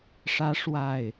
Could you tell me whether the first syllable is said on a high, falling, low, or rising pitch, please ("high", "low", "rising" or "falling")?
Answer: high